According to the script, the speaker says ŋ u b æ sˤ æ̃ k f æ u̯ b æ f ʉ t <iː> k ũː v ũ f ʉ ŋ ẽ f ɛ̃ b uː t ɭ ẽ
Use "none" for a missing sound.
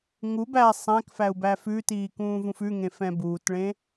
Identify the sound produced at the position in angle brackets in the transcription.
iː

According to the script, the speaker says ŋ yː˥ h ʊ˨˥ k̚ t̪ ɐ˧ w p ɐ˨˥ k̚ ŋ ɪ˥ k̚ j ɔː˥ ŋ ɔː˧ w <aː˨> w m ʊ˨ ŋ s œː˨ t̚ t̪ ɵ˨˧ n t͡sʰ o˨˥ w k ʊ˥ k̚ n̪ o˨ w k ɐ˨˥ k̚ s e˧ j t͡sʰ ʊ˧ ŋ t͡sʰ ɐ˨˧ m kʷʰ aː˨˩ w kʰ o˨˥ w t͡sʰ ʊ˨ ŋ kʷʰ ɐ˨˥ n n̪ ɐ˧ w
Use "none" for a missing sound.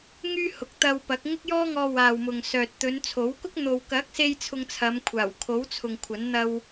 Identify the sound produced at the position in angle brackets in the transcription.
aː˨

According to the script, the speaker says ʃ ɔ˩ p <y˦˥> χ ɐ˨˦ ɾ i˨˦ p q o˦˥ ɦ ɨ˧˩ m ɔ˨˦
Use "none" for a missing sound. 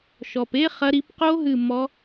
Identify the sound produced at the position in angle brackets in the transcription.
e˦˥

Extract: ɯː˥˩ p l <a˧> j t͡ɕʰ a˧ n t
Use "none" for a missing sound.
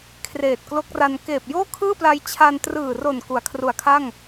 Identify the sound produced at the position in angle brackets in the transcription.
a˧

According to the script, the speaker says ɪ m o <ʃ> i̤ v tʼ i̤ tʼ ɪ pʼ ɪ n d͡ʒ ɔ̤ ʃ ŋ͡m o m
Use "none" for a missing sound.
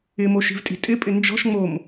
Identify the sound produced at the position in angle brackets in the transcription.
ʃ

